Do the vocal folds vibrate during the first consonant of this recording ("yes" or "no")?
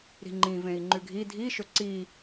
yes